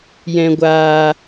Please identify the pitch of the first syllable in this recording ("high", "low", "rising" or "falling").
low